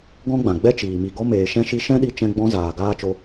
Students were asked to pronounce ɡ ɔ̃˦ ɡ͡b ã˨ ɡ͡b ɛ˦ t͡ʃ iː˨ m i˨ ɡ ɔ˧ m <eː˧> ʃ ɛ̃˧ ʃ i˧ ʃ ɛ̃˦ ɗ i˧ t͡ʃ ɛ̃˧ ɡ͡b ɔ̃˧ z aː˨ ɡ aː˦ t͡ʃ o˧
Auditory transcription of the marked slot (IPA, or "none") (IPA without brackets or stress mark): eː˨